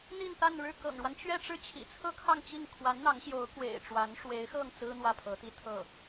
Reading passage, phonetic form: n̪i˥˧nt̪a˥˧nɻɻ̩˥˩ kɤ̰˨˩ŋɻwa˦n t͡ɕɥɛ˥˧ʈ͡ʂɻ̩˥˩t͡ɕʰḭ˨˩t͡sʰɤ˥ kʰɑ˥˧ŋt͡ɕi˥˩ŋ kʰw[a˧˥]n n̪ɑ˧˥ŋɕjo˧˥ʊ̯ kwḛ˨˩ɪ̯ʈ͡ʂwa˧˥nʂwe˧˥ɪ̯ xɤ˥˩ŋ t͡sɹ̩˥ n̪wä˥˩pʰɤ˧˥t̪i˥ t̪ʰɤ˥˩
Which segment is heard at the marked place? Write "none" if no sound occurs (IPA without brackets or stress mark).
a˧˥